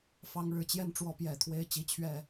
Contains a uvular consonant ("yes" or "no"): no